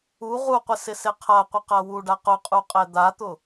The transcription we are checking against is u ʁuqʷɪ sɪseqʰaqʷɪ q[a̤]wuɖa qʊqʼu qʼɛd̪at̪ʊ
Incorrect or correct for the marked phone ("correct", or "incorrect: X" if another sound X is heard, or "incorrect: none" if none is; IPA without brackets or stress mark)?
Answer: incorrect: a